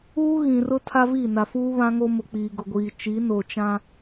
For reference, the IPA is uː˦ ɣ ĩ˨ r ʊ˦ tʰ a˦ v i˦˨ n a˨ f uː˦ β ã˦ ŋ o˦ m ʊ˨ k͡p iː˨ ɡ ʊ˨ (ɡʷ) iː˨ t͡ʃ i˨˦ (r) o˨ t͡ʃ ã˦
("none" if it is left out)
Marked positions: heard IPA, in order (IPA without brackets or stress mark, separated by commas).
ɡʷ, n